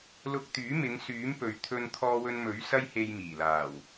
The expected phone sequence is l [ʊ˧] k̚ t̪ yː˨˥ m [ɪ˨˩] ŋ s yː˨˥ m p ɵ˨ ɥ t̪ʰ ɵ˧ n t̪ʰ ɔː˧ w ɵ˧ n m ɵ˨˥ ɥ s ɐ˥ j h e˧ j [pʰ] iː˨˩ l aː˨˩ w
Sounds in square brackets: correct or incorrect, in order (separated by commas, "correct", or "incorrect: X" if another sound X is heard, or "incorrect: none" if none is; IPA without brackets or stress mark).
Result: correct, incorrect: ɪ˨˧, incorrect: m